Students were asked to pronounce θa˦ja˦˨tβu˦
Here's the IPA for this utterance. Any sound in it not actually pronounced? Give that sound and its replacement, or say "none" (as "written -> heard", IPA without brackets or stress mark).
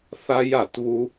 none